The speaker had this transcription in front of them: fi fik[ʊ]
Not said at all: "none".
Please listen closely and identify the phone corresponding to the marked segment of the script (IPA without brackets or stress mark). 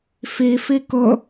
ʊ